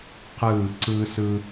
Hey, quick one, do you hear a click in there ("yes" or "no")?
yes